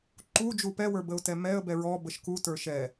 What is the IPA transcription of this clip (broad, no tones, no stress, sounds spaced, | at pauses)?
ǃ u d͡ʒ u p ɛ w ə˞ b ə ʊ̯ t ɛ m ɛ ə̯ b ɛ ɹ ɔ b ə ʃ k u t ə˞ ʃ ɛ